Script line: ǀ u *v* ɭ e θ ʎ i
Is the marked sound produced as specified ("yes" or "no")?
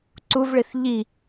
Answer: yes